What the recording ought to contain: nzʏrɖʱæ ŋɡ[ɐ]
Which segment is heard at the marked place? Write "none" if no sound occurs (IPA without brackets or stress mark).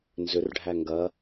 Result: ɐ